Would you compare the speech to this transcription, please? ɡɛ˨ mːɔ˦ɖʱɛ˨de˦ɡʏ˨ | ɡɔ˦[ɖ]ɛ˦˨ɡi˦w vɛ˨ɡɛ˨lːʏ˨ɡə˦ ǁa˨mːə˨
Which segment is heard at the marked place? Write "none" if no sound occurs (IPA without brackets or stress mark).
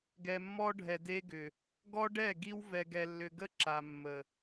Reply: ɖ